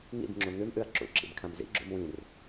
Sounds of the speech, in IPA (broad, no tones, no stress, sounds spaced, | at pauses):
ŋ ḭ b ŋ͡ǁ u ŋ ʉ m ʔ ʉ ɐ̯ ǁ ṵ ǁ ḭ b kʰ ã m z ḭ ɡ͡ǁ ṵ m w ĩ r